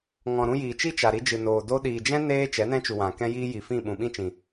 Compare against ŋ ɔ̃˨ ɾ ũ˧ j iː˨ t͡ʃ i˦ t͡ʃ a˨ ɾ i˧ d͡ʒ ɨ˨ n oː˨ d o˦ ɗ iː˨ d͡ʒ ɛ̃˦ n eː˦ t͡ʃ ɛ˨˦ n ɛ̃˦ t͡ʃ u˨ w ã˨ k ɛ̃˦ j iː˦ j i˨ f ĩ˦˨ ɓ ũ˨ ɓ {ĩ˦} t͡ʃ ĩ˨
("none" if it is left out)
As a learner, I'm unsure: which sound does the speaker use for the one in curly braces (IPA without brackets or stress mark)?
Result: ĩ˦